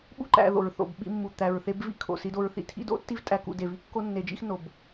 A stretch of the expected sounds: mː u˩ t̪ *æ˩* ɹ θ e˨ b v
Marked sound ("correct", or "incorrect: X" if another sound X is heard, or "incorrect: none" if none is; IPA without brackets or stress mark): correct